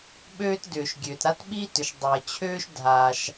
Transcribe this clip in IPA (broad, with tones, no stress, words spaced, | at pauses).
ɓøː˥tdʏː˩ʃ ɡʲøː˩tɾa˥tɓiː˥tʏ˩ʃ dˤəː˩t͡ɕʰøː˥ʃ dʱaː˩ʃ